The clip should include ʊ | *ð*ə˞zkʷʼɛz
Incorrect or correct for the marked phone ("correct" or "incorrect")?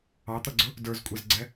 incorrect